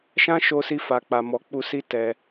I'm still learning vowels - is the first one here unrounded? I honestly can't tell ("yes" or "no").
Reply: yes